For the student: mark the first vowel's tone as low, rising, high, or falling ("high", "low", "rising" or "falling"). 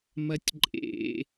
high